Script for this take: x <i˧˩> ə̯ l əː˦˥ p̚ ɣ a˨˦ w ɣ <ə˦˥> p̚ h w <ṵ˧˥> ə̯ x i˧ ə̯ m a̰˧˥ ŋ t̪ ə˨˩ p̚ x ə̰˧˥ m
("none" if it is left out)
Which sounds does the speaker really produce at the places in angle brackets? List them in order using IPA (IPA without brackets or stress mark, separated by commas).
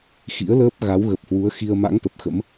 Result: ḭ˧˥, ə˨˩, u˨˦